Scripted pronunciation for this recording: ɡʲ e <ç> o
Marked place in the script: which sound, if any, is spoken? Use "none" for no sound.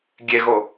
ɣ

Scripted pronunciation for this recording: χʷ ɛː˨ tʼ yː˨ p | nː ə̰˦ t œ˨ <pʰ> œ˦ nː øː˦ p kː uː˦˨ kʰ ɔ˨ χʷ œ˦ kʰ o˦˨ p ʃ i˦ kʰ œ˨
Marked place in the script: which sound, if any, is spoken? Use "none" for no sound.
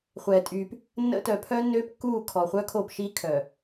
pʰ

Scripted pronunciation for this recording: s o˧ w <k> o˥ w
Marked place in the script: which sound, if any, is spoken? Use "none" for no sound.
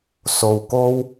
k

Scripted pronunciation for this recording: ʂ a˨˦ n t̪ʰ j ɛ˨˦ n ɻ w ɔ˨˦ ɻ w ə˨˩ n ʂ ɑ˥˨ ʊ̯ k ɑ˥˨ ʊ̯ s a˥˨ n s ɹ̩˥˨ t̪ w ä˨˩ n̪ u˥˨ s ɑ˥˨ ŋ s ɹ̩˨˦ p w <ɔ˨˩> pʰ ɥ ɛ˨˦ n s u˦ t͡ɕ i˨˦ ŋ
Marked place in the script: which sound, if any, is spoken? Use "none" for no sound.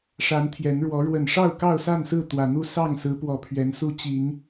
ɔ˨˩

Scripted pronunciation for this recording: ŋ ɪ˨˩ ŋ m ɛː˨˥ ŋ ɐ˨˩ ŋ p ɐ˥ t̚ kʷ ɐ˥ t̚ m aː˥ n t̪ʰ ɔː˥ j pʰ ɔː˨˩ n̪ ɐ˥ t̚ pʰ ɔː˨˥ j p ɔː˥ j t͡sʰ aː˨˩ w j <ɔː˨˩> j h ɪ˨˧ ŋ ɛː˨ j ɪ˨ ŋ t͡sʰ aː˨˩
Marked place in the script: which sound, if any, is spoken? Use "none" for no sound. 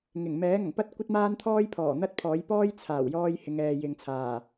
ɔː˧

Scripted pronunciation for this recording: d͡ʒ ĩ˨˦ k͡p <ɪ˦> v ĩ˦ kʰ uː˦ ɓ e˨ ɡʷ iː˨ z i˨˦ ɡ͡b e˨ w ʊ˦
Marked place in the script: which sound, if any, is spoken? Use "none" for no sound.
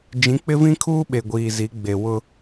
ɪ˦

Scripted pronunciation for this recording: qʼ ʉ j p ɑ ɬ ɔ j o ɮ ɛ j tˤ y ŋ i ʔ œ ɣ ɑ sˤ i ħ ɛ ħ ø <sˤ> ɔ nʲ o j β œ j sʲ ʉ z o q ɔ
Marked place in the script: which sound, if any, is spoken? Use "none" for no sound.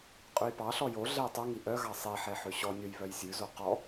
ɕ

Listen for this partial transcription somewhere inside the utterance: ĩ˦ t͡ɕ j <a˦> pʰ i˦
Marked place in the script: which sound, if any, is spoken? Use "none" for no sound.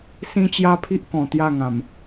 a˦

